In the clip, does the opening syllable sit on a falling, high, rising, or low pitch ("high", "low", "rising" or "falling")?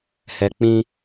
low